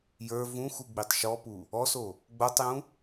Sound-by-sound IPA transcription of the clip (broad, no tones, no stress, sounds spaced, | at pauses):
j ə˞ v ũ x u ɡ͡b i tˤ ʃ ɔ p u | ɔ s o | ɡ͡b o tˤ j ũ